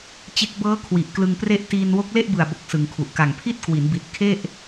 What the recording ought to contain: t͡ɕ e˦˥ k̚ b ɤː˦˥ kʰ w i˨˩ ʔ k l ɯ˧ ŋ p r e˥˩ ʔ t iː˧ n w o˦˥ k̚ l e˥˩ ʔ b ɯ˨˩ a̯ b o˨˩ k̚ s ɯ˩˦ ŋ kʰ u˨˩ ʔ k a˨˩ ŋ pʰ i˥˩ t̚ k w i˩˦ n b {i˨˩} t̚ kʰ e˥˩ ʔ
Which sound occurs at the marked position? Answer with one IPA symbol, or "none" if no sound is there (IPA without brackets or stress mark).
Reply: i˨˩